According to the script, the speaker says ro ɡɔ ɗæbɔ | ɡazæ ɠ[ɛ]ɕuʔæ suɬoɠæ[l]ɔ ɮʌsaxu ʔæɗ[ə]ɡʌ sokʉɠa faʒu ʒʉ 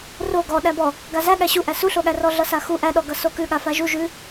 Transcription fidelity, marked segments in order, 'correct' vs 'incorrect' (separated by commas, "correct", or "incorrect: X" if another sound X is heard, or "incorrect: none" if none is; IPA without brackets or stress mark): incorrect: æ, incorrect: r, incorrect: ɔ